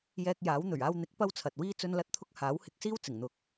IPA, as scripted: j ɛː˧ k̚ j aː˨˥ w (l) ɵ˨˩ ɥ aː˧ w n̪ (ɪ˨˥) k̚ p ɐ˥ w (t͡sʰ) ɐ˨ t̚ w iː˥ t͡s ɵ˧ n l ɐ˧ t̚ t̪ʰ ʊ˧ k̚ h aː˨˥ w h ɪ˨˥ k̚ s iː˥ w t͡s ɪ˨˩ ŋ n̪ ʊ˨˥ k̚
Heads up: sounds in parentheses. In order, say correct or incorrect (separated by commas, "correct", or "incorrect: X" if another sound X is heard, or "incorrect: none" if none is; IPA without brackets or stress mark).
incorrect: n̪, correct, correct